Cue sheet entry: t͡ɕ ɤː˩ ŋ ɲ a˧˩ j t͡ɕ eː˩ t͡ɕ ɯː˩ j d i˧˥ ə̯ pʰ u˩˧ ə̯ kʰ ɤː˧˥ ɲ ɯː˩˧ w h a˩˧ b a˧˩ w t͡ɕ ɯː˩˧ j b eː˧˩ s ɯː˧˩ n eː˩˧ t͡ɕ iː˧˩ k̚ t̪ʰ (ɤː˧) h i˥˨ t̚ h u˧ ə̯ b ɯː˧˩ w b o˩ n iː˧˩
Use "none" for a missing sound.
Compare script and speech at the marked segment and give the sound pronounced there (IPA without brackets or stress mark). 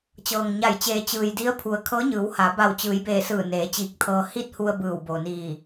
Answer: ɤː˧